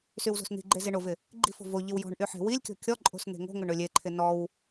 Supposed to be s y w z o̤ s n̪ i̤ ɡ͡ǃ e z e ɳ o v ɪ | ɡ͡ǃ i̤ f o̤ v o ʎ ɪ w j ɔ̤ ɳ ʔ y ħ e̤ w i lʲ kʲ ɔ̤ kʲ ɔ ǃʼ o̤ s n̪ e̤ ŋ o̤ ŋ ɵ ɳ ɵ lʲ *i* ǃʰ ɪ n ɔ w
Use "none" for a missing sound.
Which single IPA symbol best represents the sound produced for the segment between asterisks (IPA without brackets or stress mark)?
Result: e